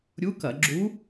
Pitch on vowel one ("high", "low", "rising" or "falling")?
rising